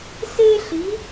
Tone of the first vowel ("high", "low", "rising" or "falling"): high